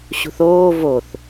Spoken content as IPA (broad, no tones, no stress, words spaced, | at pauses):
ɕṳθoː voθ